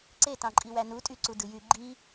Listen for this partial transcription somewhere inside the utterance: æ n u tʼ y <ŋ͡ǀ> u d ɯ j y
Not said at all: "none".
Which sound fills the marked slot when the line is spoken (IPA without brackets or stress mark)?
ǀ